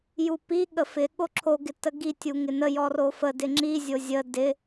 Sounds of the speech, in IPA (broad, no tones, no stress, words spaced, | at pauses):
jupi ɠəfɪ ɠoǁʰo ɡɪtəɡi tʲuŋɪnə jɔrofə dɪŋ͡ǁi zʲozʲə dɪ